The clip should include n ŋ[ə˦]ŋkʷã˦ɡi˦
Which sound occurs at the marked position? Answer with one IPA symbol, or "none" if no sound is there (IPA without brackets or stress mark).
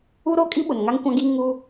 a˦